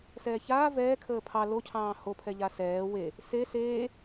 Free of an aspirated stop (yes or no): no